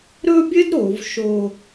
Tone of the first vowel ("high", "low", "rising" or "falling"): high